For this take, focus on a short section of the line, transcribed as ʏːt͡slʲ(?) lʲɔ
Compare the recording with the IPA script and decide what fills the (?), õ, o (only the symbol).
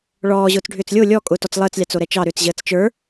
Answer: o